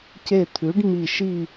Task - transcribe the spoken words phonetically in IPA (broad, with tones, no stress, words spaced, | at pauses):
ce˧˩t̪ʰʉ˩˥ɖmi˧˩ ʃi˥˧